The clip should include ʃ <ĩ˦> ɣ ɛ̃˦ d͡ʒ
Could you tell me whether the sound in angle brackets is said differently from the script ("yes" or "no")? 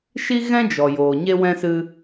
yes